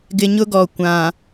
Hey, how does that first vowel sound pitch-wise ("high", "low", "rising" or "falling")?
low